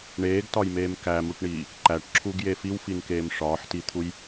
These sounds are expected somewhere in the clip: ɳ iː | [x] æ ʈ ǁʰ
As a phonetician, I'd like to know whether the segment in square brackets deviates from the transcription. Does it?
yes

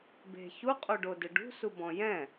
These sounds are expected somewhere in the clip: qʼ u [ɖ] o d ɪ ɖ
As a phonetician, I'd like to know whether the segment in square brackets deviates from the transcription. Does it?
no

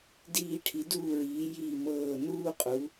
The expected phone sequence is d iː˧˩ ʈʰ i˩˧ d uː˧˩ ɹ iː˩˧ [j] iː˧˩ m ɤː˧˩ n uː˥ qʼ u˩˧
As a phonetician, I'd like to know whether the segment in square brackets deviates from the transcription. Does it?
no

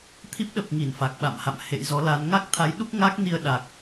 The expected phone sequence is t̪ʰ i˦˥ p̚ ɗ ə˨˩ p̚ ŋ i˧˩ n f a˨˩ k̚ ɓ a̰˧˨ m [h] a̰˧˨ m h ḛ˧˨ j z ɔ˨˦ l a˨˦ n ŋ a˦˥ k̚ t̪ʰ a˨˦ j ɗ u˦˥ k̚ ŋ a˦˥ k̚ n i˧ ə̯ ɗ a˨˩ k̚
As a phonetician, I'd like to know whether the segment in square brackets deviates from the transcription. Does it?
no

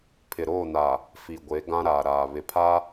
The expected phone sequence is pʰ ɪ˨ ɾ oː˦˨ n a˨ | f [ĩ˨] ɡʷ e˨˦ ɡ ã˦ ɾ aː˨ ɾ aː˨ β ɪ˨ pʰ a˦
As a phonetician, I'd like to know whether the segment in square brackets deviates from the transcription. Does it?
yes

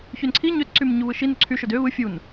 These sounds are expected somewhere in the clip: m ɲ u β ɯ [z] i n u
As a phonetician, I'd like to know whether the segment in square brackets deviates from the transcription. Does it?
yes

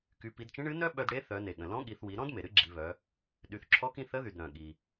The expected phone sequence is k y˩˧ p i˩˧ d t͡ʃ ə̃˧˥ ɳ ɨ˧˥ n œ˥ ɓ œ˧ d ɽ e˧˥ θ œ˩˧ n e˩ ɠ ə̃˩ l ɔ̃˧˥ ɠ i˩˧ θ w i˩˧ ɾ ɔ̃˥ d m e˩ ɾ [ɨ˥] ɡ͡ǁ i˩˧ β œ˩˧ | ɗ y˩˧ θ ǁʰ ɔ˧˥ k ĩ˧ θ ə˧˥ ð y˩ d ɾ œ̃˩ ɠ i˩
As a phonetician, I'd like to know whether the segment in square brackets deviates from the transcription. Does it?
no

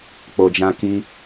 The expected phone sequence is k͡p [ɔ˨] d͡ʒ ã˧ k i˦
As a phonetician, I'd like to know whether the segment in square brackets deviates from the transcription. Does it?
yes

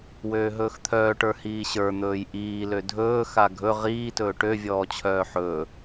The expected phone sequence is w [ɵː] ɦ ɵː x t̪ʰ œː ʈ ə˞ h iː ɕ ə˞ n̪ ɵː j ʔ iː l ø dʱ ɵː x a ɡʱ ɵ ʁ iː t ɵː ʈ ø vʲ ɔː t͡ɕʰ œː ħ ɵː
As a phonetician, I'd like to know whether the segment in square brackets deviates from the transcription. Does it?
yes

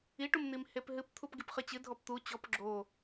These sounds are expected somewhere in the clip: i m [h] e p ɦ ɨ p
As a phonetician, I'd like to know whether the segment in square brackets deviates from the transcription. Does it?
no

